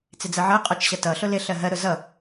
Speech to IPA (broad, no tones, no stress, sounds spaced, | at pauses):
t͡s ɪ d͡z ɜ ʕ ɜ qʼ ɔ t͡ʃ ɕ ʌ t ʌ ɬ ʊ l ɪ ɬ ɜ ɦ ɜ ɾ ʊ z ʌ